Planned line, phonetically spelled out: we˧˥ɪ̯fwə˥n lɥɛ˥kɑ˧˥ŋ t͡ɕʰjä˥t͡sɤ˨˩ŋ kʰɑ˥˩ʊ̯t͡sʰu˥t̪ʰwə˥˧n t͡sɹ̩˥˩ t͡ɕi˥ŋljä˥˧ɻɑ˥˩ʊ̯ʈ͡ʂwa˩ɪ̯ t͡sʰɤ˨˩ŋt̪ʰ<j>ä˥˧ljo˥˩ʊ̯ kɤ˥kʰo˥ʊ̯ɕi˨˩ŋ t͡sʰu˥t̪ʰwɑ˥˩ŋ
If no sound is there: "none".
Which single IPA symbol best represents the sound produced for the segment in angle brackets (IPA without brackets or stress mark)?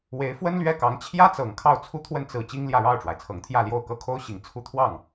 j